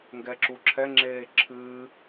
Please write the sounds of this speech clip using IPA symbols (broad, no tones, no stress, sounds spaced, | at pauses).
ŋ ɡ ɛ ǁ u ǁʰ ɛ ŋ͡ǁ eː ǁʰ ɨː